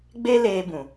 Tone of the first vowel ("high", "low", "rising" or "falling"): high